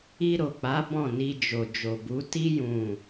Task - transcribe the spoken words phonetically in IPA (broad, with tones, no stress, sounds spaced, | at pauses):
i˧ ɾ o˨ k͡p a˨˦ b ɔ̃˦˨ n i˧ d͡ʒ o˨ d͡ʒ o˨ b u˨˦ t i˦ j ũ˦˨